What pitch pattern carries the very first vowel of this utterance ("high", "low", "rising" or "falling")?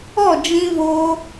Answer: falling